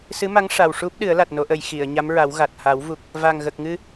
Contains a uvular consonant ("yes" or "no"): no